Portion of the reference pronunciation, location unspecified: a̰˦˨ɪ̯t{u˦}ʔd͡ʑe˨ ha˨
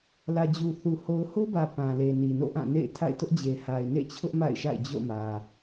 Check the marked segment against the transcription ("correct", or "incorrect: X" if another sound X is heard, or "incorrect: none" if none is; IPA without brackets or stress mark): incorrect: ʊ˦